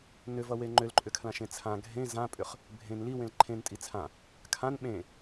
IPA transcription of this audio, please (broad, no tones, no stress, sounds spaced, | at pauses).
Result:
n ʏ v ʌ w e ŋ͡ǃ ʏ l ǃʼ ʏ kʰ l ã ʃ ẽ t͡sʰ ã ɡʱ ẽ z ã pʼ ʏ χ | bʱ ẽ n l i w ẽ l ǃʰ ẽ n tʼ i t͡sʰ ã | kʰ ã n ɓ ẽ